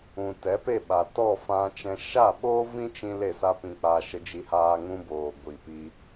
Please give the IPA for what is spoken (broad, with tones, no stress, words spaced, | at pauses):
ũ˨tɛ˨˦pe˦˨ɓa˨ tɔ˦˨fã˧t͡ʃɛ̃˧ ʃa˦˨ɓoː˦ vĩ˦t͡ʃĩ˧ le˦˨sa˦pĩ˧k͡paː˧ ʃə˧d͡ʒi˧haː˧ ŋũ˦boː˨ ɡʷi˨pi˧